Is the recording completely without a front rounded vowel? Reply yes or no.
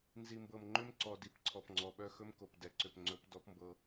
no